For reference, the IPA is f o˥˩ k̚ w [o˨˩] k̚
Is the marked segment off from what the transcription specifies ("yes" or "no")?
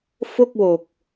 no